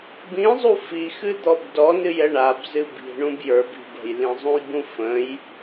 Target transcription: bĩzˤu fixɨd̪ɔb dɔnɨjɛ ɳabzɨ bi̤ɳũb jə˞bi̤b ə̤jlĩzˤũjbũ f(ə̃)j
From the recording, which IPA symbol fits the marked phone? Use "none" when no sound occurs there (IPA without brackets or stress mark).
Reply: ə̃